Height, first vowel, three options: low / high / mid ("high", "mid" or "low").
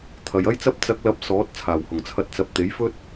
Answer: low